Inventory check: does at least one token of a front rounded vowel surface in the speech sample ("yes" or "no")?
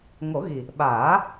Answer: no